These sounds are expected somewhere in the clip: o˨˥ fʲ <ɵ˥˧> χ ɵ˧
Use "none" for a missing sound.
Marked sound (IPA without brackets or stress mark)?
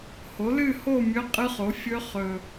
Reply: ɵ˦˥